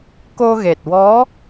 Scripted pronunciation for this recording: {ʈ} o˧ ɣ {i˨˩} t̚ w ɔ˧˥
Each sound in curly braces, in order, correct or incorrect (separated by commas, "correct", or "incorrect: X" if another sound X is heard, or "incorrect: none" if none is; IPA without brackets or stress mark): incorrect: k, incorrect: e˨˩